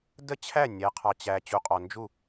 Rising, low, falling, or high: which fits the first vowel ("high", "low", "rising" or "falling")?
falling